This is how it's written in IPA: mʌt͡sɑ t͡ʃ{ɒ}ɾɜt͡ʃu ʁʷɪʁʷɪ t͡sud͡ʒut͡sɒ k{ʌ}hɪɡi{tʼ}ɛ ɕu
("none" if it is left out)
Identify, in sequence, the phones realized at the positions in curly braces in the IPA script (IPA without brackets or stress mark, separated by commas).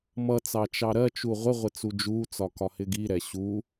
ɑ, ɒ, ɾ